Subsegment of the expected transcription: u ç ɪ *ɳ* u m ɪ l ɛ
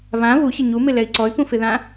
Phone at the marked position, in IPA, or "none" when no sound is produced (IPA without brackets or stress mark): ɲ